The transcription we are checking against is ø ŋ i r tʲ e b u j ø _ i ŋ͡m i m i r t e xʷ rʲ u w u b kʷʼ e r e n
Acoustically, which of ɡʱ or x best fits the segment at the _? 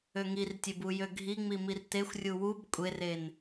ɡʱ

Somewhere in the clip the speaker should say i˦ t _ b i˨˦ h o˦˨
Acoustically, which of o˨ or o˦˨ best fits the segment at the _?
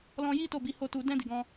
o˦˨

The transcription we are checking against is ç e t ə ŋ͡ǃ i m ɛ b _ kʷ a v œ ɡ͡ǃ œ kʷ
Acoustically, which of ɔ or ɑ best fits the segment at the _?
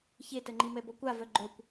ɔ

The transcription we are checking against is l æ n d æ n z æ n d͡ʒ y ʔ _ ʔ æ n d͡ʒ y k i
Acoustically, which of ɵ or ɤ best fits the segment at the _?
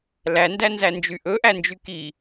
ɵ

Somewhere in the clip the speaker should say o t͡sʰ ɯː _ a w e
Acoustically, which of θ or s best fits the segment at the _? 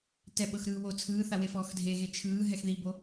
θ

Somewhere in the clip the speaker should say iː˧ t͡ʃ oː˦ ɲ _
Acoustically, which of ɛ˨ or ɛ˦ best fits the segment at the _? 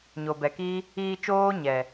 ɛ˨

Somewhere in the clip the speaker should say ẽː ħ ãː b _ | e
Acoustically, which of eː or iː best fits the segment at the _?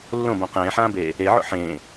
eː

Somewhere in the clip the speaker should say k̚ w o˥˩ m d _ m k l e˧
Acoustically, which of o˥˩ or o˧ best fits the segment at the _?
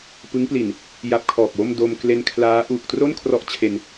o˧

